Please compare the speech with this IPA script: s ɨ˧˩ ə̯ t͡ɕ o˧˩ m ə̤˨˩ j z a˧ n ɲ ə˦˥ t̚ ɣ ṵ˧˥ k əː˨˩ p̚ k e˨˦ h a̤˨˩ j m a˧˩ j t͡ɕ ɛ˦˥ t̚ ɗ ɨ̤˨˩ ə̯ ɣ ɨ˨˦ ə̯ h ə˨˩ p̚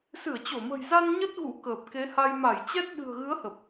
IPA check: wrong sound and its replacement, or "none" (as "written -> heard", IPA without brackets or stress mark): a̤˨˩ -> a˧